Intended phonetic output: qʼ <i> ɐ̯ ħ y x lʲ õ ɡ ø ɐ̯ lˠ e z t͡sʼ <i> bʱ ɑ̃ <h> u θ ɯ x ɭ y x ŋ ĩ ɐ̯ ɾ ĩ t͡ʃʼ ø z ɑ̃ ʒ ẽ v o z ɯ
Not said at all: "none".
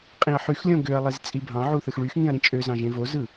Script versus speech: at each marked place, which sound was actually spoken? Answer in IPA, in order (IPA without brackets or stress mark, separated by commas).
ĩ, i, ʕ